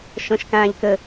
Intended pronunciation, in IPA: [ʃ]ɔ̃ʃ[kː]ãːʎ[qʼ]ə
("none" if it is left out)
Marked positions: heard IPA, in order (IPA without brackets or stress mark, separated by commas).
ʃ, k, k